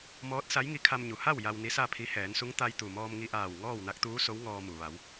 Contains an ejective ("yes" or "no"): no